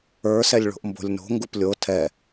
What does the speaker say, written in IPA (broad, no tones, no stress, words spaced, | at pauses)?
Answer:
ə˞sɛlʲɭo̤ʔmbo̤lʲ no̤ŋɡup lʲo tʰɛ